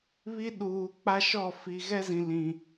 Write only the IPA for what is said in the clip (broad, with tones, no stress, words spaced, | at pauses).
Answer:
βi˦ ɗuː˨k͡pa˦ʃɔ˦˨ fi˨ ɣɛ˦zĩ˨lĩ˨